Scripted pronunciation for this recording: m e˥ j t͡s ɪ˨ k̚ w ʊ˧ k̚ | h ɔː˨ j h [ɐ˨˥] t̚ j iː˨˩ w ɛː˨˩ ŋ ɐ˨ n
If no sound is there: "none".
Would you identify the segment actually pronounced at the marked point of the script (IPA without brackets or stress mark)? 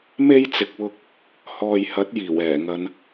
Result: ɐ˨˥